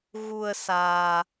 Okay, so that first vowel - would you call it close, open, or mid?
close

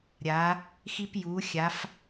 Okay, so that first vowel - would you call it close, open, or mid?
open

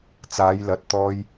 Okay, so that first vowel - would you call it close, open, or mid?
open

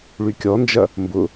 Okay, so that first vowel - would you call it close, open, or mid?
close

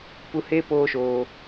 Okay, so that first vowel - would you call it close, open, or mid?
close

